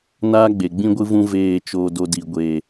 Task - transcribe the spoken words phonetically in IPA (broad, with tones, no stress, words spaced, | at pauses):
naː˦ɡ͡be˨ɡ͡bĩ˦ ɡʷɨ˦vũ˦veː˦˨ t͡ʃoː˧ do˧di˨ ɡʷeː˨